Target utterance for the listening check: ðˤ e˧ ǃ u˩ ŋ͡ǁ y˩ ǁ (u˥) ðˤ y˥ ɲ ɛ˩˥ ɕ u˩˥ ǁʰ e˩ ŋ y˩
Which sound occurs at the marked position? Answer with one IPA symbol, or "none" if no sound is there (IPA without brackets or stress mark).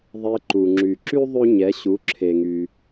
y˥